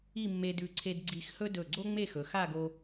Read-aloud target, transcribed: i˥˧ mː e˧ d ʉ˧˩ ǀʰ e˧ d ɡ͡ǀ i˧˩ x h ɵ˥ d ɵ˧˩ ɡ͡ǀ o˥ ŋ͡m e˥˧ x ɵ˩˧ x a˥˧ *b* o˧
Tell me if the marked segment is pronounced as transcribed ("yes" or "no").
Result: no